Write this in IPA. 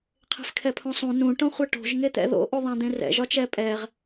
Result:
qʰ e̤ f kʰ ɛ pʰ õ sˤ ũ n ũ ʈ õ χʷ ɛ ʈ o̤ ʒ ŋ e t̪ ɛ̰ ð o̰ ʔ u ðˤ ɛ̃ d̪ ẽ r ɛ̰ ʒ ɒ t͡ʃ ɛ pʼ ɛ ʁ

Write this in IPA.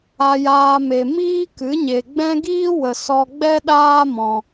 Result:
a˦ j aː˦ m e˧ m iː˦ k ɨ˨˦ ɲ e˨ ɡ͡b ɛ̃˦ ɡ iː˦ w ə˨ s ɔ˧ ɡ͡b ɛ˦ ɗ aː˦ m ɔ̃˧

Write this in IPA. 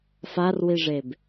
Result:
f a r w i ʐ e b

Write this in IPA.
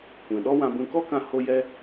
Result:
kʷ ɛ̃˨ ɗ ɔ˦ w ã˧ b ũ˧ k ɔ˦ k ã˧ h o˧ j ɛ˧

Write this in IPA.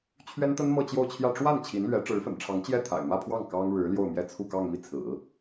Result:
t͡ɕʰ ɥ ɛ˥ n t̪ ə˥ n m ɤ˥˧ t͡ɕ j o˥˧ ʊ̯ t͡ɕʰ j ä˥˧ ʈ͡ʂ w a˥˩ n t͡ɕʰ i˧˥ n l ɥ ɛ˧˥ ʈ͡ʂ ɻ̩˧˥ f ə̰˨˩ n ʈ͡ʂʰ ɑ˧˥ ŋ t͡ɕ j ɛ˥˩ t̪ʰ a̰˨˩ ɪ̯ m ä˥˧ pʰ w ɑ˥˩ ŋ k ɑ˥ ŋ ɻ ɻ̩˧˥ l j o˥˧ ʊ̯ m j ɛ˥˧ t͡sʰ u˥˧ k ɑ˥˧ ŋ m i˥˩ t͡sʰ ɹ̩˨˩˦

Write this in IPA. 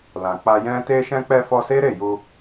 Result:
l ã˨ k͡p a˧ j ɛ̃˧ t e˧ ʃ ɛ̃˧ k͡p ɛ˧ f ɔ˧ s e˦ ɾ e˦˨ j u˧

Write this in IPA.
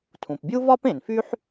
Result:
tʰ ũ˩ p bʲ u˥ v ɒ˥ p ẽ˩ n f y˥ ħ

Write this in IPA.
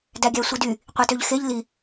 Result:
d æ ɡʲ æ sʷ i d y | qʷ i t ø ʎ x e ʎ l i

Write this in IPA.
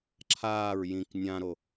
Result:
ǁʰ aː ɹ j ĩ k nʲ ã ɾ o

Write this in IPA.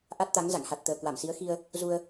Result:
ʔ a˦˥ t̚ t̪ a˨˦ ŋ z a̰˧˨ ŋ h a˨˩ t̚ t̪ əː˨˩ k w a˧˩ m s i˨˦ ə̯ x i˧ ə̯ | z u˧ ə̯

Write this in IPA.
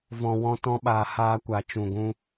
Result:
v ɔ̃˧ w ɔ̃˦ t ɔ̃˦ ɓ aː˧ h aː˦ kʷ a˧ t͡ʃ ũ˧ ɡʷ ũ˦

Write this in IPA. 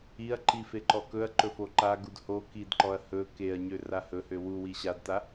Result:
i ɐ̯ ǃ i f e ǃ ɔ k ɵ ɐ̯ ǃ ɵ f o ǃ a ɡ u d h o k i d ǃ ɔ ɐ̯ h ɵ k e ɐ̯ ɲ ø r a h ɵ h ø w u w i ɕ a d t a

